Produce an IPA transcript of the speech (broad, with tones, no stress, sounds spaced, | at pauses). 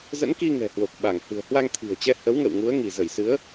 z ə̰˧˥ n k i˧ ŋ ɛ̤˨˩ h w o˨˩ k̚ ɓ a˧˩ ŋ h ɨ̤˨˩ ə̯ h w a˧ ŋ t̪ʰ i̤˨˩ ə̯ t͡ɕ ɛ˧ h ə˨˦ w ŋ ə̰˧˨ w ŋ u˨˦ ə̯ ŋ i˧˩ z ə˧˩ j s ɨ˨˦ ə̯